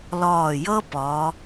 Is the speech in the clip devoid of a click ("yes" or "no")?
yes